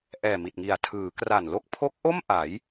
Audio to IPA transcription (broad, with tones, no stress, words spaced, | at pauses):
ʔɛː˨˩mi˨˩t̚ŋi˨˩a̯ tʰɯː˩˦kra˨˩nlo˥˩k̚ pʰo˦˥k̚ʔo˥˩m ʔa˩˦j